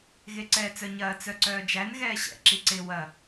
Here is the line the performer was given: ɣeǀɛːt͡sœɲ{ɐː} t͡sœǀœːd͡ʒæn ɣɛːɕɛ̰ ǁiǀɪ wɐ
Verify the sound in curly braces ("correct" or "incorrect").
correct